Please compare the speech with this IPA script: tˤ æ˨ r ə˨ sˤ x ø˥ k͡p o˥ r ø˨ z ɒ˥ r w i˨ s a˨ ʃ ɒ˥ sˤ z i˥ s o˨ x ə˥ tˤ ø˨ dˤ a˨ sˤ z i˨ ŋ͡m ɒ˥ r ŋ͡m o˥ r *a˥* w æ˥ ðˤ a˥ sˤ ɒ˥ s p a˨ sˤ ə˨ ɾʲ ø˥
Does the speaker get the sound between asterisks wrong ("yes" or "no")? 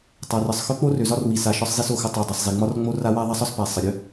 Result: no